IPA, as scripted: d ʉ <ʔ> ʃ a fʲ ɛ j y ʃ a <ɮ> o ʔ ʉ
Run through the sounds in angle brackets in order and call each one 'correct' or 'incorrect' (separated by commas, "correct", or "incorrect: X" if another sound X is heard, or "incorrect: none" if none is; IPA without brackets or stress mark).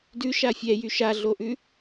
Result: incorrect: none, correct